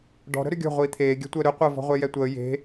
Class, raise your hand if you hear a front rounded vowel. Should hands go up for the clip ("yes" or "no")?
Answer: yes